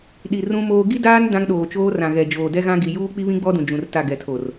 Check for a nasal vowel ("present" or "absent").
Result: present